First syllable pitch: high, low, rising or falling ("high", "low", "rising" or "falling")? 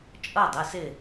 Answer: falling